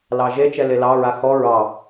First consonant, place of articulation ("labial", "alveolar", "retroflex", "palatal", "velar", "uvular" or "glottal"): alveolar